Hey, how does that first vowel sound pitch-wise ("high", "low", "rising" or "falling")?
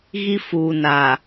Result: high